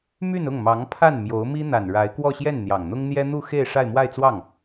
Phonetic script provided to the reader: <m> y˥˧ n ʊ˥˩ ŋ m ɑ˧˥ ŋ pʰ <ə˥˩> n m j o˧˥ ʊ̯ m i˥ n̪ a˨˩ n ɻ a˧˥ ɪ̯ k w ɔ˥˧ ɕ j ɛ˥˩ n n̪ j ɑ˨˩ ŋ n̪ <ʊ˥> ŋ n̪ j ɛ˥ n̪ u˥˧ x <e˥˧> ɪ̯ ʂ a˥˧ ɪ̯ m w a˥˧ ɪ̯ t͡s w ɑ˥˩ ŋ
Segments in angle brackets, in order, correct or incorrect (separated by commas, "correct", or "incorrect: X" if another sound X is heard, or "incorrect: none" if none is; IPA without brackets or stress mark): correct, incorrect: a˥˩, correct, correct